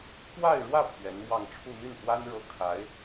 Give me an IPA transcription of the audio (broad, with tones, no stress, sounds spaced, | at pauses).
k w a˥˧ ɪ̯ ɻ w ä˥˩ pʰ ɥ ɛ˧˥ n m w ɑ˥˧ ŋ ʈ͡ʂʰ u˥˧ n̪ y˥˩ n x w a˥ n ɻ ɤ˥ kʰ a˧˥ ɪ̯